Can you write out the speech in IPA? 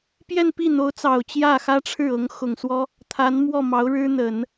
pjɛ˥˧npi˥˩n̪o˧˥ʊ̯t͡sɑ˨˩ʊ̯ t͡ɕjä˥˩xä˥ʈ͡ʂʰɻ̩˥˩ɤ˧˥ŋ xʊ˨˩ŋswɔ˥ | t̪ʰa˧˥nmwɔ˥˩mɑ˧˥ʊ̯ɻɻ̩˥ n̪ə˨˩˦n

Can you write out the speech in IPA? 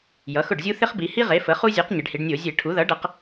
jʌ˩˥xʊ˥˩ɖzʲu˥ θɪ˥χbi˩˧hi˥ʁe˩˥ fə˩˥χu˥ zʲo˩˥q ɲɪ˩˧ɖhi˩˧ɖnʲo˧˩˧ zʲe˧˩˧ʈʰu˩˥ ðʌ˩˥ɖʌ˩˧q

